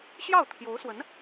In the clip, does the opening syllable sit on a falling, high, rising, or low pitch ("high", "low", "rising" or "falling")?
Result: falling